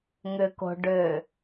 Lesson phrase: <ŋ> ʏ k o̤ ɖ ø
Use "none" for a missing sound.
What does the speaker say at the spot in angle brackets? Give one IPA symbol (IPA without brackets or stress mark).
ŋ